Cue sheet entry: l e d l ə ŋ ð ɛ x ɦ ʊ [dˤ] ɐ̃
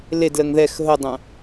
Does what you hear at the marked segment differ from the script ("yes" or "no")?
no